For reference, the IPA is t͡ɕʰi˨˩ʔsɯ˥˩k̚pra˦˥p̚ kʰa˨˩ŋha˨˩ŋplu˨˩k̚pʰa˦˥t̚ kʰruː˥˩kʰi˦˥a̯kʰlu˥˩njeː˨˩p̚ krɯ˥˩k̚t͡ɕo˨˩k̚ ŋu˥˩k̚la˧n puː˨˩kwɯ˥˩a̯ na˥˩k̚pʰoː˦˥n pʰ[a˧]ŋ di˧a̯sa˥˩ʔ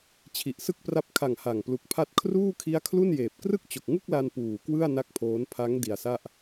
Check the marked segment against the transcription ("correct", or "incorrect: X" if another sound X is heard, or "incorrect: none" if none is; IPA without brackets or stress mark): incorrect: a˦˥